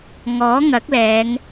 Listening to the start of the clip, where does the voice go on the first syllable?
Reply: rising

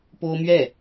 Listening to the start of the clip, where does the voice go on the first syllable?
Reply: high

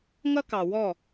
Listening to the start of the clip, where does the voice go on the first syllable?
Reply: high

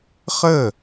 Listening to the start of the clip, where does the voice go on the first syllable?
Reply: falling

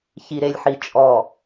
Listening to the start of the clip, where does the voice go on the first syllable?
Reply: low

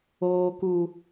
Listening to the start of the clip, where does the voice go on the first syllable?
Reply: high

